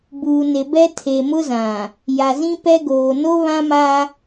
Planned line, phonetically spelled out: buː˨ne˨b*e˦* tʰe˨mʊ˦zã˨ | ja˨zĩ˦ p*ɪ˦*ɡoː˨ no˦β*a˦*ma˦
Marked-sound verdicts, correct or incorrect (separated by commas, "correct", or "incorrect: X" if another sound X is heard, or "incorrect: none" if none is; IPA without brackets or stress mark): incorrect: ɛ˦, incorrect: ɛ˦, incorrect: ã˦